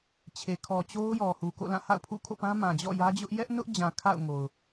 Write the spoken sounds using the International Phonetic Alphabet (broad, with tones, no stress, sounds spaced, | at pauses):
t͡ɕʰ e˨ kʰ ɔ˨ t͡ɕ o˦ ʊ̯ j ɔ˨ h u˨ k o̰˦˨ l ã˦˨ h a̰˦˨ ʊ̯ pʰ ṵ˦˨ kʰ o̰˦˨ p ã˦ m ã˨ d͡ʑ ɔ̰˦˨ j ä˦ d͡ʑ ʊ˦ ʔ j ɛ˦ ʔ n ʊ˦ ʔ d͡ʑ ã˨ kʰ a̰˦˨ ʊ̯ ŋ o˨ ʊ̯